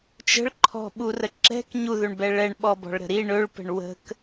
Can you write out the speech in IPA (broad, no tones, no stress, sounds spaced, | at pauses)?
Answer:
t͡ʃ ə̤ ɭ ǃʰ ɔ̤ ɓ u r ə ǁ ɛ̤ k ɲ u ð ɵ ɳ b ɛ ɭ ɛ ɳ ɓ ɔ b ɔ̤ ɭ ɾ ə̤ ɾ i ɳ ɵ ɭ p ə̤ ɳ w ə̤ k